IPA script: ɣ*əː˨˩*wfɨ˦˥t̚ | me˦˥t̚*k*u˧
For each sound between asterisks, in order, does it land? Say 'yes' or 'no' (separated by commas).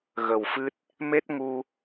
no, no